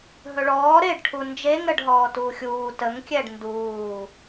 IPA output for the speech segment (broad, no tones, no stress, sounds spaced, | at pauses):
ɦ ɵ ɭ ɔː ɾ eː ɖ ʈʰ u n d͡ʒ e ŋ ɾ ə ɖ ɦ ɔː t uː xʲ uː t ə ŋ kʲ ɛ ɖ n d uː